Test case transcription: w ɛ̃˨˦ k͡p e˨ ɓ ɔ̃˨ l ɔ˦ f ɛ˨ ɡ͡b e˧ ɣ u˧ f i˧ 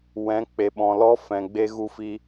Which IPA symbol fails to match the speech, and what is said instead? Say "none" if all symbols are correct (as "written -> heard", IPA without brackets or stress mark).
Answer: ɛ˨ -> ɛ̃˨